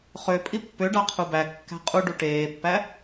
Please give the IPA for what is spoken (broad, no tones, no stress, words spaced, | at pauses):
χøpʼi pːøɖɑ qʰubækːæ̤ qʼuɖu ʈeːpːæ